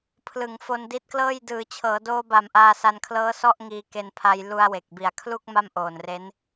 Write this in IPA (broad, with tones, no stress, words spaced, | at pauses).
pʰlɯ˩˦ŋ fo˧ndi˦˥t̚klɤː˥˩j dɯː˩˦t͡ɕʰɤː˩˦doː˧ba˨˩m ʔaː˧sa˧nkʰlɤː˦˥ sɔ˥˩ʔŋiː˧ke˧npʰa˧j lu˧a̯we˨˩k̚bi˨˩a̯ kʰlu˥˩k̚ ma˥˩mʔoː˨˩nre˦˥n